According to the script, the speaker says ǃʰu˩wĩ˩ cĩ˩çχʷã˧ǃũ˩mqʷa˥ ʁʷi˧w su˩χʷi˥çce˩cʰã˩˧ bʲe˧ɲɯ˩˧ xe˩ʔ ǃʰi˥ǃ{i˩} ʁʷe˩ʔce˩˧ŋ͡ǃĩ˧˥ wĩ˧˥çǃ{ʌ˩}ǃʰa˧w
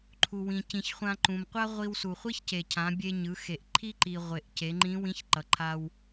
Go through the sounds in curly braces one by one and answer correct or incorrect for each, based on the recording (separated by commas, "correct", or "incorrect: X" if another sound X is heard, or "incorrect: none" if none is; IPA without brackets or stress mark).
correct, correct